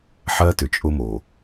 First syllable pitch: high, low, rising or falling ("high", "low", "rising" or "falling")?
high